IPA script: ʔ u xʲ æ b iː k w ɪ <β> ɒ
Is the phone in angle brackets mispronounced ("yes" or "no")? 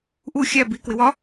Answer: yes